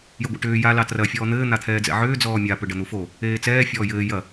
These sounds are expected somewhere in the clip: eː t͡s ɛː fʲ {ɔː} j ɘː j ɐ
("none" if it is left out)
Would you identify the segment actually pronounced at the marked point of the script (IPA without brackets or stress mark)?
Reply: ɔː